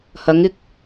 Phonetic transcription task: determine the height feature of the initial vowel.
low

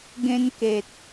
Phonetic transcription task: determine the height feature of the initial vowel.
mid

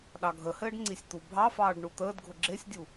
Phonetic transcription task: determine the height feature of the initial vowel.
low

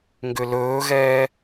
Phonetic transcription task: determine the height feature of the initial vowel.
high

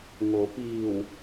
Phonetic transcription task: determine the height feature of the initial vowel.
mid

